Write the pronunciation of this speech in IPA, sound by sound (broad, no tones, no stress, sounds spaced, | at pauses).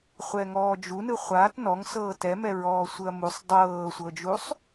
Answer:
χʷ ɛ ŋ ɔː d͡ʒ u n ɯ χʷ a t n ɔ ŋ s ɤː t ɛ m ɛ ɹ ɔː sʷ ɯ ɐ̯ m u sˤ dˤ ɤː sʷ ɤ d͡ʒ u sˤ